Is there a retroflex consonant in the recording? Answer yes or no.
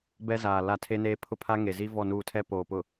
no